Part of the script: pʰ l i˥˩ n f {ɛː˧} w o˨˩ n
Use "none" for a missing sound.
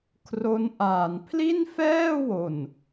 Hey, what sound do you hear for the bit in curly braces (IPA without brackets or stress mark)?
ɛː˥˩